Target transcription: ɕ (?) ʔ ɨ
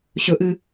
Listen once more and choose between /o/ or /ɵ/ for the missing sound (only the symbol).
ɵ